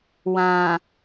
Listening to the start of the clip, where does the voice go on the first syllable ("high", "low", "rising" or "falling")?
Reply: low